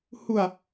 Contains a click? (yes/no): no